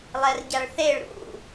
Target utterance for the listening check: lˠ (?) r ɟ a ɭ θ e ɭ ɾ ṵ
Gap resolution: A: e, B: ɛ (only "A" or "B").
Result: B